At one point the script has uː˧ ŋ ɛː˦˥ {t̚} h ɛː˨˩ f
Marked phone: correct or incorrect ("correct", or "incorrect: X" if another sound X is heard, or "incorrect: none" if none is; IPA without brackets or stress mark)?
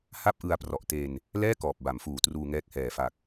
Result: incorrect: k̚